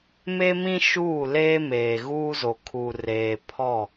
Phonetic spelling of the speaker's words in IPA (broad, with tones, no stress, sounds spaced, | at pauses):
m e˦ m ĩ˦ ʃ uː˦˨ l eː˦ m eː˨ ɣ uː˦ z o˨ kʰ u˨ r eː˨ pʰ ɔ˦˨